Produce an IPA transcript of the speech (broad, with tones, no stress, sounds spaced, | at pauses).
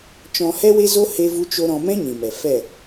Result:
t͡ʃ ɔ̃˧ h ɛ˦ w e˦ z o˦ h e˦ v u˦ t͡ʃ o˦ ɾ ɔ̃˧ m ɛ̃˦ ɲ ĩ˨ m ɛ˨ f ɛ˦˨